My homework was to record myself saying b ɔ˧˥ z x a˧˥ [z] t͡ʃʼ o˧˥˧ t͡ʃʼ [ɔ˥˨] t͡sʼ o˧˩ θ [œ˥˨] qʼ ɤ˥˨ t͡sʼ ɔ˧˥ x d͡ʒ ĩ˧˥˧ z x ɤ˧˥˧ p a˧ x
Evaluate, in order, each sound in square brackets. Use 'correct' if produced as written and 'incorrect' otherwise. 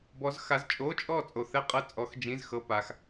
correct, correct, incorrect: ɛ˥˨

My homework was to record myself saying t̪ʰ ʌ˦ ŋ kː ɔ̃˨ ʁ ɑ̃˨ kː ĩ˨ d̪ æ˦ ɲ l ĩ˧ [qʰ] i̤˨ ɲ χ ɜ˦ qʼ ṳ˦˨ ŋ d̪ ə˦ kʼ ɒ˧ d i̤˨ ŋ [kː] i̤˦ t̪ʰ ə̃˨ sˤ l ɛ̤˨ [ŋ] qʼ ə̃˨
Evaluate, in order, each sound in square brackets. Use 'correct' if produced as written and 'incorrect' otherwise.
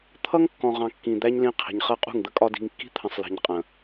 correct, correct, incorrect: ɲ

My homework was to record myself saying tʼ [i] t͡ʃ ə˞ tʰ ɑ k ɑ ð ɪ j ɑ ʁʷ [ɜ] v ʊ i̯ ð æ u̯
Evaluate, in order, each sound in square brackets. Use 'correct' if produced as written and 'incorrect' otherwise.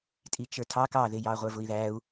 correct, incorrect: ə˞

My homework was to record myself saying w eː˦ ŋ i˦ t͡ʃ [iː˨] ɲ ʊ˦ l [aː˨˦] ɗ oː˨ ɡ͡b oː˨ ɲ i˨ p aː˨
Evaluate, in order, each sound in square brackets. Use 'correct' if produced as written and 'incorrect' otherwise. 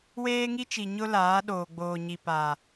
incorrect: i˨, correct

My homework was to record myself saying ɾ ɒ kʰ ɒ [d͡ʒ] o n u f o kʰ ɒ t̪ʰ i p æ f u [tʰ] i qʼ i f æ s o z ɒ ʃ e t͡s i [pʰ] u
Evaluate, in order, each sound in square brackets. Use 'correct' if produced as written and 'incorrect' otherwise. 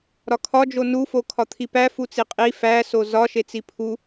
correct, incorrect: t͡s, correct

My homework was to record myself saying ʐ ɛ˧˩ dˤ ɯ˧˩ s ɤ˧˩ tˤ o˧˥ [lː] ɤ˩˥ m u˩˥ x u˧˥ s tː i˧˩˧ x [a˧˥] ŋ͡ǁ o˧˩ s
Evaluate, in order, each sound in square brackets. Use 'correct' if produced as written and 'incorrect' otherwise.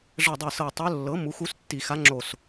correct, correct

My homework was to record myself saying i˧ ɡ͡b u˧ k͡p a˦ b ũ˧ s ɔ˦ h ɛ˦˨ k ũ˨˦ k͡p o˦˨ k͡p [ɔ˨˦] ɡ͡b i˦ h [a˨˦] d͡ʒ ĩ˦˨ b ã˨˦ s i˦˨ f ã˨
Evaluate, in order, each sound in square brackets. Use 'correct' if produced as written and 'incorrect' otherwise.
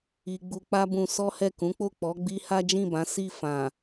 correct, incorrect: a˦

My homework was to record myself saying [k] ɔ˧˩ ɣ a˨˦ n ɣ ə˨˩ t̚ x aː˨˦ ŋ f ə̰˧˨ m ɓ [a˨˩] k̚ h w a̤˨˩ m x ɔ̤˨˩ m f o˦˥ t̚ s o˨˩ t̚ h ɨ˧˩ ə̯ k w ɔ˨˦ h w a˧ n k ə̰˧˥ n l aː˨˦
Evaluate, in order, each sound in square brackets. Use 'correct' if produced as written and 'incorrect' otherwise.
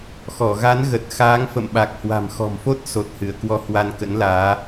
incorrect: x, correct

